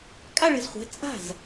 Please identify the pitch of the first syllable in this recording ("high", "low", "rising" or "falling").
falling